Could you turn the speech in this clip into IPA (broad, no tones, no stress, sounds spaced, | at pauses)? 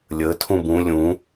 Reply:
lʲ ə tʰ ũ b ũ lʲ ũ